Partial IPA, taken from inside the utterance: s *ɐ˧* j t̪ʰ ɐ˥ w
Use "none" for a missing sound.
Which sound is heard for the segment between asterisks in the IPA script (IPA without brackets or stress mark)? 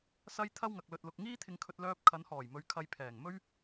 ɐ˧